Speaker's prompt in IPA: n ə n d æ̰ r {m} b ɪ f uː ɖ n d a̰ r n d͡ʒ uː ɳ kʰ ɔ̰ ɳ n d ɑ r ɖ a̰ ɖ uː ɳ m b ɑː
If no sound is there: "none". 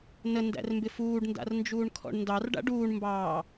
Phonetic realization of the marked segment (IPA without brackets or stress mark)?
m